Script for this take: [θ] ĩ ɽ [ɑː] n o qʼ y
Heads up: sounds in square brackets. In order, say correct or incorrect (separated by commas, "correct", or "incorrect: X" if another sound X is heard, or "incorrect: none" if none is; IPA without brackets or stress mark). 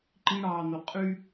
incorrect: ǃ, correct